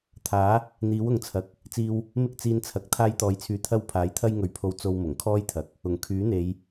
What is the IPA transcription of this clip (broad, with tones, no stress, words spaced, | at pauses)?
t̪ʰaː˨˥ | n̪iː˨˥wʊ˨ŋt͡sʰɐ˨k̚ | t͡siː˧w | mɪ˥k̚t͡siː˧nt͡sʰɐ˨k̚ t̪ʰaː˧jt̪ɔː˨jt͡sʰyː˨˧ t̪ʰɐ˧w pʰaː˨˥jt̪ʰɐ˥jŋɵ˨˧ɥpʰo˧w t͡so˧wmʊ˨˩ŋkʰɔː˥jt̪ʰɐ˨k̚ | ʊ˨˩ŋkʰyː˨˥n̪e˨˧j